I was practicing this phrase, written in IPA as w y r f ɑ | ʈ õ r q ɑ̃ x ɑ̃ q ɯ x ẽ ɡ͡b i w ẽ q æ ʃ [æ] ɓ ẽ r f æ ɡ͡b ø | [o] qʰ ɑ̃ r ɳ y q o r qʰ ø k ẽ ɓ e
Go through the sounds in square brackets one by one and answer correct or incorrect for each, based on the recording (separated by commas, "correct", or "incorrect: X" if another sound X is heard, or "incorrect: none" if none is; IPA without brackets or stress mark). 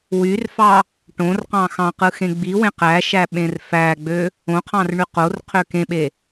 correct, incorrect: õ